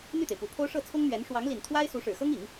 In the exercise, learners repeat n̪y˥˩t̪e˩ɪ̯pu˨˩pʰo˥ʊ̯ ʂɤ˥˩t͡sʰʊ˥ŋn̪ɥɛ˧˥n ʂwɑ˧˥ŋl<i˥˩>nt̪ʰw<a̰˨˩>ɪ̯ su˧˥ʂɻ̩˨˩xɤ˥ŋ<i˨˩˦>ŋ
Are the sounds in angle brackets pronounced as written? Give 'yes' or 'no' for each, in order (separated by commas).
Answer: no, no, yes